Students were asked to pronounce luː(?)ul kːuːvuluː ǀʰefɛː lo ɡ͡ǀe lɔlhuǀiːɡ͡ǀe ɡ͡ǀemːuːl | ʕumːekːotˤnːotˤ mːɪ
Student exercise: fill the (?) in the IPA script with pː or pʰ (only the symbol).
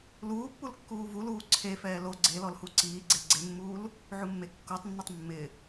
pː